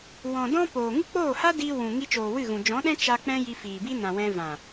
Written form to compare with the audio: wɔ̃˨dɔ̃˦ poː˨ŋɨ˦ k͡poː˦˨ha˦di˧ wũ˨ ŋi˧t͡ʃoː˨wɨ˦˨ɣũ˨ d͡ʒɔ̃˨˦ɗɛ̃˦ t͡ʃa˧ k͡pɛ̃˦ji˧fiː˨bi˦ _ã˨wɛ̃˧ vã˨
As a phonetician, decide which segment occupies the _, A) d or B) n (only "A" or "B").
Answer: B